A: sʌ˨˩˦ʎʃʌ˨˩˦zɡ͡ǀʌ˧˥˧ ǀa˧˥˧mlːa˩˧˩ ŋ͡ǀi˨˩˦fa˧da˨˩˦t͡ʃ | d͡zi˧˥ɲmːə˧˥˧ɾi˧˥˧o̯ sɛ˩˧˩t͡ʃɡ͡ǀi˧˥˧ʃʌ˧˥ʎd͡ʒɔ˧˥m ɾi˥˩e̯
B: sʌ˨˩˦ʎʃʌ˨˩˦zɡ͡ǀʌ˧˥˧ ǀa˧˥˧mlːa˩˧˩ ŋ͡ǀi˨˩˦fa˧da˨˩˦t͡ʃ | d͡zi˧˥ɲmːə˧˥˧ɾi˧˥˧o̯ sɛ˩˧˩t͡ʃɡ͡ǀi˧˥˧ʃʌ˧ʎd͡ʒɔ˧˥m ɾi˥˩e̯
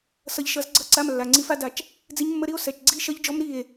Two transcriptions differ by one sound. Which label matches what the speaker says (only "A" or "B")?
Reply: A